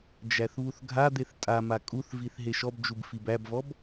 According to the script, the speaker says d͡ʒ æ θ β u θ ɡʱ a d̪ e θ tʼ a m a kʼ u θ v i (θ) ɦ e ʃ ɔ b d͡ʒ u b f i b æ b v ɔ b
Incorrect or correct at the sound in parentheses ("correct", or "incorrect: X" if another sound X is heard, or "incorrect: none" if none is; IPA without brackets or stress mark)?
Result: correct